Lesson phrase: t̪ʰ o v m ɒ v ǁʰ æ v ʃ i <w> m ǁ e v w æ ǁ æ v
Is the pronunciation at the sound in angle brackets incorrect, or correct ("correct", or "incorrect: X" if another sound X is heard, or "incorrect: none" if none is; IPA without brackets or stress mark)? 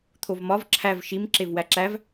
incorrect: none